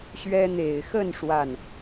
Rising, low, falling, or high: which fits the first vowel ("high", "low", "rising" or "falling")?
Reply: high